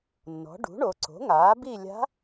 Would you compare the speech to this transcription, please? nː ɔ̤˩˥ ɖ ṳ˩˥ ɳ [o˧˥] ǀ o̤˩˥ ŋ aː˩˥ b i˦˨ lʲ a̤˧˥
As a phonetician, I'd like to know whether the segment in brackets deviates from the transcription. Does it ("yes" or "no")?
yes